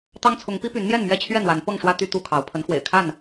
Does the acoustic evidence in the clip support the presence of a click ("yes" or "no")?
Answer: no